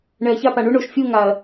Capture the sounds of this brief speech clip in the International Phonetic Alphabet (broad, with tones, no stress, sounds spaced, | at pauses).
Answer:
ɳ ɛ˨ ɐ̯ ç a˦˨ p a˨ ɳ u˦ ɳ o˨ ʃ fʲ u˦˨ ŋ a˨ ɐ̯